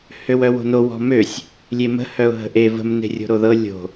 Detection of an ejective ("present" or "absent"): absent